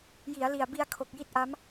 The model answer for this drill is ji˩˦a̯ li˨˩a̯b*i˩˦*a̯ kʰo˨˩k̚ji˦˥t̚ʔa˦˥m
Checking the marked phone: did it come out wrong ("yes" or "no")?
yes